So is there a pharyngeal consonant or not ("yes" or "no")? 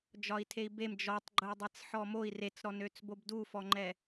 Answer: yes